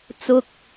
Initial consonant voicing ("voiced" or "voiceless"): voiceless